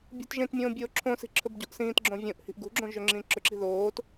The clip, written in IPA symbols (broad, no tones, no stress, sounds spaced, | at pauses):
bʲ o̤ t ʒ ẽ t mʲ õː bʲ oː ǁʰ õ s i̤ ǁʰ ɵ b ɟ o̤ ʔ s ĩː t ɡ͡ǁ õ vʲ õ ʔ h i̤ ʔ ɡ ṳ ɡ͡ǁ õ ʒ ø ŋ͡ǁ ĩː ǁ ɵ ǁ i̤ ð oː t